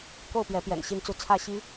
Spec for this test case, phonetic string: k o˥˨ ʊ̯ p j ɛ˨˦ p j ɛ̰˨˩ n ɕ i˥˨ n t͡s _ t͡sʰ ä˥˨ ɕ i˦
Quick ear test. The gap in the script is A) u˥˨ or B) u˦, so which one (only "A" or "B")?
A